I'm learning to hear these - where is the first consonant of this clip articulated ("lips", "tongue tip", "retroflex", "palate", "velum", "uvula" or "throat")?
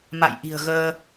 lips